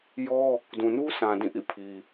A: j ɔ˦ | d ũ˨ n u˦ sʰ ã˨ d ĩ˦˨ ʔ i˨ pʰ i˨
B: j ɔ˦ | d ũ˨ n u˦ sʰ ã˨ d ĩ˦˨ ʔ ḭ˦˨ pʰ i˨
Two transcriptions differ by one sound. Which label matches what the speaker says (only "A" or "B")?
B